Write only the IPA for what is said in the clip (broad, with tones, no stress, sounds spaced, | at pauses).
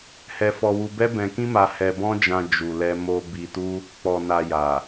h ɛ˧ f ɔ˧ w u˧ b ɛ˦ b ɛ̃˧ k ĩ˦ m a˧ h ɛ˧ b ɔ̃˦ d͡ʒ ã˧ d͡ʒ u˨ l ɛ˧ m o˧ b i˧ t u˦ | k͡p ɔ˨ n a˨ j a˨